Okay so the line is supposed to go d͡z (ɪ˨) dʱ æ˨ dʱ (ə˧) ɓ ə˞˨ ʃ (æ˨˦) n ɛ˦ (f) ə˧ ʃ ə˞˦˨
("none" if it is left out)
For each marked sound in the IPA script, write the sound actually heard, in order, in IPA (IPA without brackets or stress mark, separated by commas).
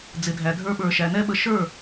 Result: ɪ˨, ə˞˧, æ˨, ɓ